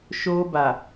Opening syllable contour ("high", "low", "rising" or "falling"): high